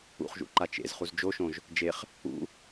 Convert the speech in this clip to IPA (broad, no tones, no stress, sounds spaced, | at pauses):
ṵ χ ʒ ṵ ǃ a t͡ʃ ḛ z χ u z d͡ʒ o ʃ õ ʒ | d͡ʒ e χ | ṵ